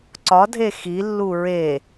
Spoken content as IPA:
ǀ ɒ dʱ e x i lː u ɹ e

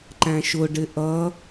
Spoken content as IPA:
ǃ æ̃ ʃ ʊ ɖ ɪ ʔ ʌ

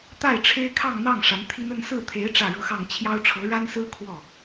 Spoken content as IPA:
t̪ a˥˩ ɪ̯ ʈ͡ʂʰ e˥ ɪ̯ kʰ ɑ˥˧ ŋ n̪ ɑ˥˩ ŋ ʂ a˧˥ n t̪ʰ i˥ n ə˥˧ n s ɹ̩˥˩ t̪ʰ e˧˥ ɪ̯ ʈ͡ʂ ä˥˩ ɻ ɤ˥ x ɑ˥˩ ŋ t͡ɕʰ j ɑ˥ ʊ̯ ʈ͡ʂʰ ɤ˧˥ ɻ a˥ n s ɹ̩˥ kʰ w ɔ˥˩

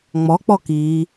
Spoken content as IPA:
ŋ͡m ɔ k͡p ɔ k iː

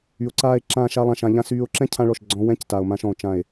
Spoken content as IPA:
y˧ o̯ ǀ aː˦ e̯ ǁ ãː˦ ʃ a˦ lˠ ã˧ ʃ ã˧ ʎ ã˦ s yː˧ o̯ ǁ ɛ̃˦ cʰ ã˧ ɭ ɔ˨ ʃ ɡ͡ǀ ɔ̃˧ w ɛ̃˦ c t a˨ o̯ m ã˧ ʃ ɔ̃˨ o̯ t͡ʃ ã˦˨ e̯

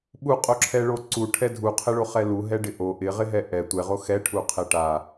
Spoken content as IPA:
ɓ u qʼ o ǁʰ ɛ ɭ o ǀ u ʈʰ ɛ dʱ u qʰ ɛ ɭ o χ ɛ l u ɦ ɛ ɖ ɪ ʔ o ʔ ɪ ʁ ɪ ɦ ɛ ʔ ɛ tʷ ɛ ʁ o x ɛ ʈʰ u qʰ ɛ ʈ a

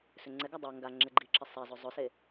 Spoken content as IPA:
s ʏ ŋ͡ǀ ɛ ɡ a dˤ ɵ ŋ ɡ a ŋ͡ǁ ɪ ɡ͡ǃ i ǁ ɪ sˤ e z ɵ zˤ ɵ s e

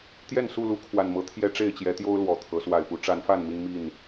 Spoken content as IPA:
t̪ j ɛ˥˨ n s u˥˨ l u˨˦ kʰ w a˨˩ n m ɤ˨˦ t̪ʰ j ɛ˦ ʈ͡ʂ e˥˨ ɪ̯ t͡ɕ j ɛ˨˦ t̪ j o˦ ʊ̯ l w ɔ˨˩ t̪ʰ ɤ˨˦ s w a˨˩ ɪ̯ p u˨˦ ʈ͡ʂ a˨˦ n f a˥˨ n m i˦ n m i˥˨ n

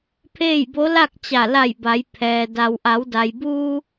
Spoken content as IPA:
pʰ eː˥˨ j b o˧˥ l a˥˨ k̚ t͡ɕ a˧˩ l a˧˩ j b a˩˧ j pʰ ɛː˩ d a˩ w ʔ a˩˧ w d a˩ j b uː˧

